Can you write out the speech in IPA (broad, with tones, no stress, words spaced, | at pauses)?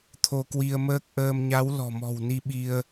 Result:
t̪ʰo˧kwi˧ə̯məː˦˥k̚ ʔəː˧mɲa˨˦w lɔ̤˨˩mɔ̤˨˩wni˧ ɓi˧ə̯